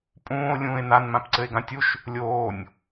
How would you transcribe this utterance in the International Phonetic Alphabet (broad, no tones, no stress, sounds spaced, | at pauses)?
pʼ ũː o̯ lʲ ũː e̯ n a n m ã p ǀ ɘ e̯ ɡ ã tʲ u ʃ | lʲ oː nʲ